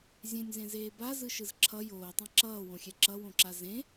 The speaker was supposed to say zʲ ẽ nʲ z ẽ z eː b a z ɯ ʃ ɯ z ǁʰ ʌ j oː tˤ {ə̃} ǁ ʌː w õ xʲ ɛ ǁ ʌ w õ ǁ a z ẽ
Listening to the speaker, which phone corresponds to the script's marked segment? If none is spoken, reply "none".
ã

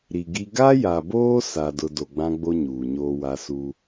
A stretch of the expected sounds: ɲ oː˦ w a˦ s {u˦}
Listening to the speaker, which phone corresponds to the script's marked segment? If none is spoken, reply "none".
u˦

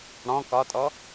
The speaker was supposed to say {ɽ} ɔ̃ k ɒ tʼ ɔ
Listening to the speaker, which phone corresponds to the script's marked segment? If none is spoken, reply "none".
ɽ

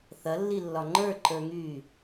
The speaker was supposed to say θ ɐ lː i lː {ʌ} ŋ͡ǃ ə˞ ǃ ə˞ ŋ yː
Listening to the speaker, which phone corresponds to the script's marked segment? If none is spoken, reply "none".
ɒ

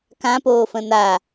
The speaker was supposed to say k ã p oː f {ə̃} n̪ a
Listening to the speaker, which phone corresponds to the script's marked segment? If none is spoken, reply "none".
ə̃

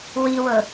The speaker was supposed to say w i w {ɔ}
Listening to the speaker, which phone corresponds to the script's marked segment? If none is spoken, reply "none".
ɤ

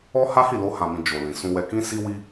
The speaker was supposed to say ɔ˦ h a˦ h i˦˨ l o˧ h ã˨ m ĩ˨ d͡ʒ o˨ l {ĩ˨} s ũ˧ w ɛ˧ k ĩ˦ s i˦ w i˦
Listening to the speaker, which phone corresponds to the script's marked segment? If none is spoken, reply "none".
ĩ˨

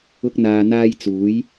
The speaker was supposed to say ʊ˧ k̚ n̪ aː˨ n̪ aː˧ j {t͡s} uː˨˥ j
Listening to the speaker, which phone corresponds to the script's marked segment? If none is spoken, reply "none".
t͡s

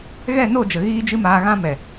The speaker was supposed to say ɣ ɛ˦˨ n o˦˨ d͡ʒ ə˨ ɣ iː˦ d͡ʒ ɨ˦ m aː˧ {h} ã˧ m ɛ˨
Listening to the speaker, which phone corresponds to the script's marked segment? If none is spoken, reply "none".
ɣ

